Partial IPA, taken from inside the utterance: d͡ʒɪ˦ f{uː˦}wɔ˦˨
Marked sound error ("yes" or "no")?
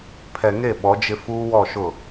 no